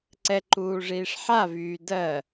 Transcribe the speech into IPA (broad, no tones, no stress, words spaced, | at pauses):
ǀɛǃuː ʐiːʂħavyː dɜ